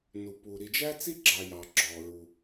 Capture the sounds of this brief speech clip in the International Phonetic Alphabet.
n u˩ p u˩ ɾ i˩ d͡ʒ æ˥ t͡s i˥ ɡ͡ǁ ɑ˩ j ɑ˩ ɡ͡ǁ ɔ˩ ɹ u˩

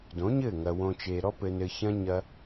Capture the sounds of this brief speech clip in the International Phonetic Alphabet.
d õ˨˦ ɲ ɘ˦˨ ŋ ɐ˨ w õ˨ t͡ʃ e˨ ɾ ɔ˧ p ɘ˨ n ɘ˨ ç ɐ̃˧ ɲ ɐ˧

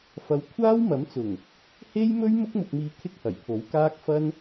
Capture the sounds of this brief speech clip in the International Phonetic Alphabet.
f ɐ˧ w kʷʰ aː˥ w m ɐ˨˥ m t͡s ʊ˨˩ ŋ | h e˥ j m ɵ˥ ɥ m ʊ˥ k̚ m ʊ˧ k̚ m iː˧ kʰ ɪ˥ k̚ h ɐ˨˩ j pʰ o˨˥ w k aː˥ k̚ f ɐ˥ n

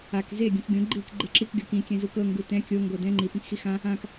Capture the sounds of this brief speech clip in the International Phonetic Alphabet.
a k z e ɡʲ ũ k ɡʲ õ ɡ͡ǃ iː k ɡ͡ǃ e ǁ i k ɡʲ o k ĩ kʲ ɛ̃ z u k ɤ ŋ ɡ u t ɛ̃ kʲ o ŋ ɡ o d ɛ̃ ŋ͡ǃ i p ĩ k x i x ã | ã k

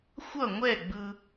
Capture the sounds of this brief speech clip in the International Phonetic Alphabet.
xʷ ʌ˦˨ ŋʷ ɛ˦˨ ɡ͡b ɯ˧

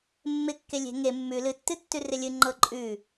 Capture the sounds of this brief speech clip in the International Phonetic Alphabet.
mː ɪ kː e lʲ e̤ ŋ e mː ʉ l ɨ tː ɨ tː ʉ r ɪ lʲ ɨ ŋ͡ǃ ɤ ǃʼ ʉ

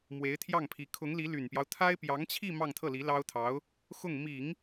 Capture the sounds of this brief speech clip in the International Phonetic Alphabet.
m w e˧˥ ɪ̯ t̪ʰ j ɑ˥˩ ŋ pʰ i˧˥ kʰ ʊ˧˥ ŋ l i˧˥ l y˨˩ n p j ɑ˦ ʊ̯ t̪ʰ a˥ ɪ̯ p j ɑ˧˥ ŋ t͡ɕʰ i˥˧ m ɑ˥˧ ŋ t̪ʰ ɤ˥˩ l i˧˥ l ɑ˥ ʊ̯ t̪ʰ ɑ˧˥ ʊ̯ | x ʊ˥˩ ŋ m i˨˩˦ ŋ

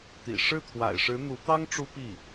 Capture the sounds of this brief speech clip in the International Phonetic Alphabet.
t̪ ḭ˨˩ ʂ ɻ̩˥˩ t̪ʰ w a̰˨˩ ɪ̯ ʂ ɻ̩˧˥ n̪ u˧˥ t̪ ɑ˥ ŋ ʈ͡ʂ u˥ p i˥˩

